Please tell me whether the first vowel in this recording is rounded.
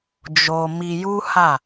yes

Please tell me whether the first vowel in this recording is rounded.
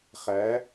no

